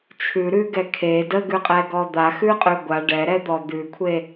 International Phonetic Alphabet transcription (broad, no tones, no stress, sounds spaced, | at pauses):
t͡ʃʰ ʉ ɾ ʉ ɡ ɛ kʰ e d ə ɡ ʉ qʼ ɛ ɡ ɔ d̪ a x ʉ qʼ ʉ ɡʷ a ɖ ɛ ɾ ɛ d̪ ɔ d̪ ʉ kʷʰ e